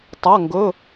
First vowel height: low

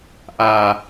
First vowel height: low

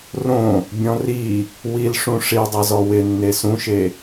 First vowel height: mid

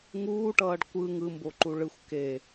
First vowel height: high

